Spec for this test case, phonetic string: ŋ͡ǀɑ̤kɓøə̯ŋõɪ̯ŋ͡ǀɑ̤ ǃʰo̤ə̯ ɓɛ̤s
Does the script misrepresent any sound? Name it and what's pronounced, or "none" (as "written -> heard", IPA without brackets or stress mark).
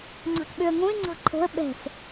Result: none